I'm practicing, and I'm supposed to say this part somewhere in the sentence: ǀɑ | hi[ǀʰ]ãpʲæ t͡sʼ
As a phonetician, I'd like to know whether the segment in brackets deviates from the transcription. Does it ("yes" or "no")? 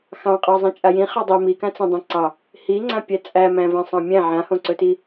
yes